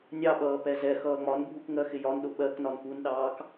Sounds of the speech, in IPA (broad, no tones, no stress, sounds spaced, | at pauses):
nʲ ɑ ɓ ʌː p ɛ z ɛ x ʌː ŋ͡m ɒ n bʱ u k ŋ ɜ x ɪ j ɒ n ɗ ʊ ɓ ɜ k n ɒ n p u n ɗ ɑː k